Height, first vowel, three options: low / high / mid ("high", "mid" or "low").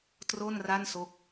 mid